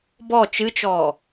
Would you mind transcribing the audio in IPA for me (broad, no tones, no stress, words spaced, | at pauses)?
bɔ t͡ʃɨt͡ʃɔː